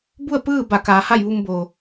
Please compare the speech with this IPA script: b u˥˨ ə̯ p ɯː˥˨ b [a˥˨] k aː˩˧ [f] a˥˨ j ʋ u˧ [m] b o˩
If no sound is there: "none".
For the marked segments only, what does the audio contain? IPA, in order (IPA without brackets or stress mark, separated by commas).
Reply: a˧˩, h, m